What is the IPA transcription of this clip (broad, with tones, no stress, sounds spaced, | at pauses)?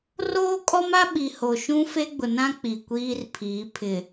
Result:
r oː˦ kʼ ɔ˦ m a˦ ɓ i˨ h o˨ ʃ ũ˦ f e˦ ɡ͡b ʊ˨ n ã˦ k͡p i˨ kʷ iː˦ r pʰ iː˨˦ pʰ ɪ˨